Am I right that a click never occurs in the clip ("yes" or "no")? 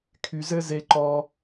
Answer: no